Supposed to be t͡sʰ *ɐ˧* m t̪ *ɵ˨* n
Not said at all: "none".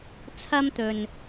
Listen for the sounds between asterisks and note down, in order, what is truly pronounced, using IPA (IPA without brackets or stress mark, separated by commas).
ɐ˥, ɵ˨